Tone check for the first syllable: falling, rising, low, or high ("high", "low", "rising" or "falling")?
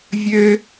high